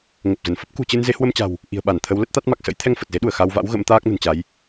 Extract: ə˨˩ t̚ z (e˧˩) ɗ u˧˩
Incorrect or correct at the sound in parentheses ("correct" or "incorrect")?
incorrect